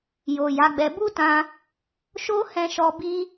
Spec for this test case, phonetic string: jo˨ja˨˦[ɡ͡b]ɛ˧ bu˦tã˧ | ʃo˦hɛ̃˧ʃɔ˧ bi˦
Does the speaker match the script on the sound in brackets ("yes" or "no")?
yes